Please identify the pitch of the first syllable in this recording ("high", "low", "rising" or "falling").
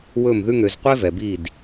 falling